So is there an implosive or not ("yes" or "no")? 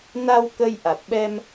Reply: yes